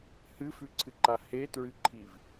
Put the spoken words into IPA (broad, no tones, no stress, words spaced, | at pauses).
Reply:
hɨfʉǀʰɨǃa hetɹɨǃʰiv